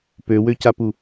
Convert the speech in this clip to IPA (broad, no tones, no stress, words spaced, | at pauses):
pøwøcapu